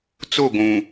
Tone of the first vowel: falling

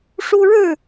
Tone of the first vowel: high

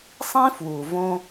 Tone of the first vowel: high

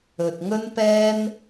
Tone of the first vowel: low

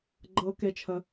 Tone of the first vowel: high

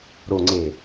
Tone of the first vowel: low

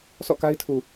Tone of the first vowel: falling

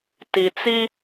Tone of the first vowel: low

